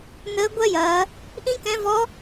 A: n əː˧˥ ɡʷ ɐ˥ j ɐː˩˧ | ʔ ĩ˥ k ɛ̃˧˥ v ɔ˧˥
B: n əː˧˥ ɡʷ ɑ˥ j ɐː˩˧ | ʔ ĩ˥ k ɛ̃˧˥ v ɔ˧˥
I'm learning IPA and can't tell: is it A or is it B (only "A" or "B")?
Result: A